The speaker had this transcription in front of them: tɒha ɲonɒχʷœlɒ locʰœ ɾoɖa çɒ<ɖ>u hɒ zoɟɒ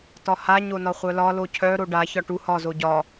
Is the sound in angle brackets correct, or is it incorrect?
incorrect: ʈ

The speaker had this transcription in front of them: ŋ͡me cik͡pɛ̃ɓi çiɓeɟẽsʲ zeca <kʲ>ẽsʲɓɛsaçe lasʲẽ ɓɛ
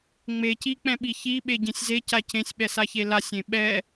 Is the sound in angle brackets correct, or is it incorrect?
incorrect: c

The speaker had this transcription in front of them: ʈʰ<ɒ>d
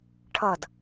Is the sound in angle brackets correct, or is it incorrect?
incorrect: ʌ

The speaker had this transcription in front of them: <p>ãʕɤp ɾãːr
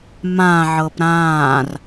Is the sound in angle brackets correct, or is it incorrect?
incorrect: m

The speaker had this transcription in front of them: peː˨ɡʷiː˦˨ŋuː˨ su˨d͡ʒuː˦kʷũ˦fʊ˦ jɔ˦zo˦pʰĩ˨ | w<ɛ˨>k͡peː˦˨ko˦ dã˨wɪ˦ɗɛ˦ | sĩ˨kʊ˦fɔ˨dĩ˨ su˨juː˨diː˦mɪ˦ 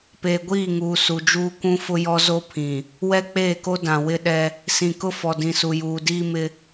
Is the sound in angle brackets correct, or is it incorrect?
incorrect: ɛ˦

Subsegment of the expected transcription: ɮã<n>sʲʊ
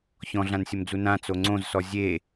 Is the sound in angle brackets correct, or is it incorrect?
correct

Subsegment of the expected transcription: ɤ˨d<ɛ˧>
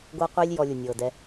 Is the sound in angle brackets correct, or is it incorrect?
correct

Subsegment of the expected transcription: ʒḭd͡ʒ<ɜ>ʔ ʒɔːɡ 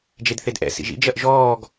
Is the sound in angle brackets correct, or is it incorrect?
correct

